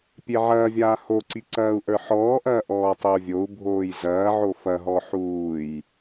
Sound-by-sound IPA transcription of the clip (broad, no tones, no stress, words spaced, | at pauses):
pʲeʕɐːvʲaː hoǀi ǀɐːu̯ʔə˞ħɔːʔɐː ʔɔːtˤeu̯vʲou̯bʱoːj zɐːʕo fɐɦɔ ħuːj